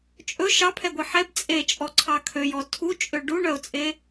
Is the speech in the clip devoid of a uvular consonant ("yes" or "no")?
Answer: yes